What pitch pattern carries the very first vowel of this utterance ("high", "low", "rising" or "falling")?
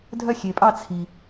falling